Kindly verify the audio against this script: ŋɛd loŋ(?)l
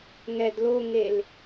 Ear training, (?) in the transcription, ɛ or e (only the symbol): e